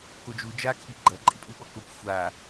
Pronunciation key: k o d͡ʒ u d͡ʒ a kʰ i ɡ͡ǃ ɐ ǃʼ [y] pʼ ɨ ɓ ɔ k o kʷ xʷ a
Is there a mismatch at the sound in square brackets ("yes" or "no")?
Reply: yes